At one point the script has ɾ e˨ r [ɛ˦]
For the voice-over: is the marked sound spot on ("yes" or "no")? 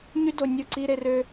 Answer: no